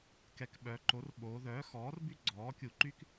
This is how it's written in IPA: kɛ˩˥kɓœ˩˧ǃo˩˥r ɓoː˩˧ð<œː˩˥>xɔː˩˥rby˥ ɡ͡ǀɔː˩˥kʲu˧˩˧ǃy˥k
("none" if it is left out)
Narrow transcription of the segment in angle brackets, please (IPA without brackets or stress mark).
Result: œː˩˥